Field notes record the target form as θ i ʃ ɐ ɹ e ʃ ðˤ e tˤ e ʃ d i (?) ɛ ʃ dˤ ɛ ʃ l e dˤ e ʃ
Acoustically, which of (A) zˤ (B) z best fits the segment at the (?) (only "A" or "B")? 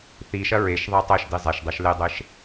A